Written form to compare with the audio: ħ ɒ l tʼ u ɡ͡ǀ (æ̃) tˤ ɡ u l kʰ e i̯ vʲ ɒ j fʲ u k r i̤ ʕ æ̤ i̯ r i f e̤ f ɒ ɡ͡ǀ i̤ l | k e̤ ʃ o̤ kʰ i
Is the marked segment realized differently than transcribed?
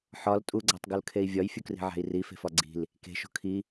yes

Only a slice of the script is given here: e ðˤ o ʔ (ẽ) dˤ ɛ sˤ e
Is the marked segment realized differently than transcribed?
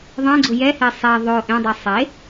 no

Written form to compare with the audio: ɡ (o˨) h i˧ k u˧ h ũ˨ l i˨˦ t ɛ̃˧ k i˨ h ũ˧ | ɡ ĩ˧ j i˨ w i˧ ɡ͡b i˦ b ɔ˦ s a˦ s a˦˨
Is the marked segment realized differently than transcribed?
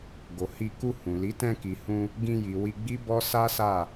no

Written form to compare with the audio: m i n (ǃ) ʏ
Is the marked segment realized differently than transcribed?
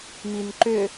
no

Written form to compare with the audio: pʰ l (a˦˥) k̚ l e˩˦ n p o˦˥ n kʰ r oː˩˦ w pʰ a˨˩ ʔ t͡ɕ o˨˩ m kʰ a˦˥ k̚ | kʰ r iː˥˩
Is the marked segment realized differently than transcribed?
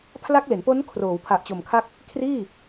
no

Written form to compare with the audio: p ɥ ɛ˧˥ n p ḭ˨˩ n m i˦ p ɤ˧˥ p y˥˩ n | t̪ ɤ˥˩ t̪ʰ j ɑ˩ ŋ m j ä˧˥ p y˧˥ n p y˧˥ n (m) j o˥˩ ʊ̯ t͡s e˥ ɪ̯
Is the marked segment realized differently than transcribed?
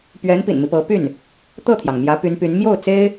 no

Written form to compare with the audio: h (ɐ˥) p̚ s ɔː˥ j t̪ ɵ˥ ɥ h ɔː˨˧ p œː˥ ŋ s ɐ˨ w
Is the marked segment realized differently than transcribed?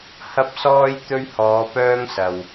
no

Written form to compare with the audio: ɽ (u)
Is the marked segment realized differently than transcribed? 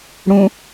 yes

